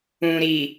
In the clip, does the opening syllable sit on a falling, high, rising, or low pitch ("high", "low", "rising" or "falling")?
low